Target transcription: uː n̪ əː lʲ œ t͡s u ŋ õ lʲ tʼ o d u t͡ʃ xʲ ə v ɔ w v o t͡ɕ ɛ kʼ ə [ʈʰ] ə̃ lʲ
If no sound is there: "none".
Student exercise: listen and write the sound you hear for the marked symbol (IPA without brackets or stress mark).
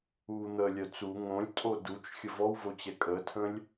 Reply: tʰ